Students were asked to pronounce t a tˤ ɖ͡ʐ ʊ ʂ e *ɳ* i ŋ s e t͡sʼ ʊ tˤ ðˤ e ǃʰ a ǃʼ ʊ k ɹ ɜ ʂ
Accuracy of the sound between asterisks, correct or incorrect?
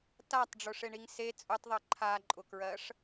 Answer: correct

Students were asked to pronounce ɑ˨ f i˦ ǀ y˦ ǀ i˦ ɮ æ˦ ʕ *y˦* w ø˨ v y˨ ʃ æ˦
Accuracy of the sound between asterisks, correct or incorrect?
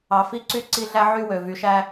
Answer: correct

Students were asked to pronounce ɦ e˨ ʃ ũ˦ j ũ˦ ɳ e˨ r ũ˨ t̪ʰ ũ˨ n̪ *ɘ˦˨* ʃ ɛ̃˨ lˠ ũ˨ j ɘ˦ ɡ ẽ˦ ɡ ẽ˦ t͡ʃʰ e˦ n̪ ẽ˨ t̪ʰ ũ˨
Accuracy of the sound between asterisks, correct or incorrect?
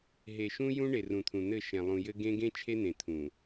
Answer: correct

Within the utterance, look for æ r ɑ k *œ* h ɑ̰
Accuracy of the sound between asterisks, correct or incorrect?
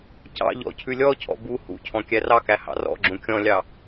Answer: incorrect: æ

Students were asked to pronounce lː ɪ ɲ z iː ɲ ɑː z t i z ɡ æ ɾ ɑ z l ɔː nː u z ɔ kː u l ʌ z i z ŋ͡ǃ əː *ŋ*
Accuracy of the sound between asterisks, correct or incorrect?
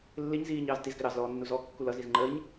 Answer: incorrect: ɲ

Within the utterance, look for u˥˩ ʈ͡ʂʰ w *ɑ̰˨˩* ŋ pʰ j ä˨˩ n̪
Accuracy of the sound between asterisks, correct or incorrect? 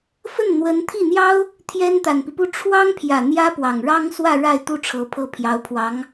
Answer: incorrect: ɑ˥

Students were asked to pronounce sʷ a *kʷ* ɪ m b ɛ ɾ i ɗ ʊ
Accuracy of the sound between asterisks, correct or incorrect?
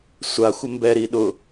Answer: incorrect: xʷ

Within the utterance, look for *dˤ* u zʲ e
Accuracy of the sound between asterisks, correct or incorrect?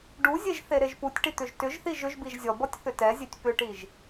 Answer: incorrect: ɖ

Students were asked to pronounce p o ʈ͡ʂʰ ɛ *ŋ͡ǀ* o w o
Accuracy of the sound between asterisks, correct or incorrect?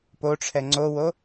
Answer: correct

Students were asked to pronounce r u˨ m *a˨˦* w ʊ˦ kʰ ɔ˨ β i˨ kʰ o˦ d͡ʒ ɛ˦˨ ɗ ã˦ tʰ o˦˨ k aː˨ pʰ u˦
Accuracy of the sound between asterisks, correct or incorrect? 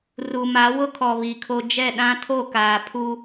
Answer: correct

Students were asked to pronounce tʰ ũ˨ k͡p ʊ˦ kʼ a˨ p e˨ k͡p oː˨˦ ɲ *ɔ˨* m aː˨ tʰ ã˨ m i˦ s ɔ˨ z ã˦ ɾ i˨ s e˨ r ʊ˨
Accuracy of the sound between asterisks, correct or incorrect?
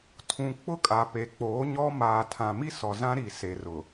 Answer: incorrect: ɔ˦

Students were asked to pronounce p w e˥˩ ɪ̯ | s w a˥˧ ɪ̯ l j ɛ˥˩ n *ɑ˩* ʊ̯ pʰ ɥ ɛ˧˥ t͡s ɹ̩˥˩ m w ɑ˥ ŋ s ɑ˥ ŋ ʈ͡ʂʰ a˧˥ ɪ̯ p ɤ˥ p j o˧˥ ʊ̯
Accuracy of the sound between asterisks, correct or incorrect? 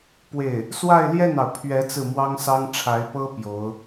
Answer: correct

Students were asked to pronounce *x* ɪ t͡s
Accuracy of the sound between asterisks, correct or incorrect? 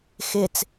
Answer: correct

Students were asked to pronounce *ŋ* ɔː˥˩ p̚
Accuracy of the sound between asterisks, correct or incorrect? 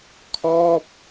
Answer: incorrect: kʰ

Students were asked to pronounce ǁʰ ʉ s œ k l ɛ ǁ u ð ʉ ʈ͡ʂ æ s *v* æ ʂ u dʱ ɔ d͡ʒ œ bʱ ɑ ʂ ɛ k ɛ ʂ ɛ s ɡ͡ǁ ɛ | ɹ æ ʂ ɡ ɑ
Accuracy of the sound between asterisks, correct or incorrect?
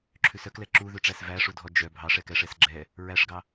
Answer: correct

